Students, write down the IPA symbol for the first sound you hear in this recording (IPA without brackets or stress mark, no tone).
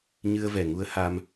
ɲ